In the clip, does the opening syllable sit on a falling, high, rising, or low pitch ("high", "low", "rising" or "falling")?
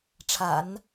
low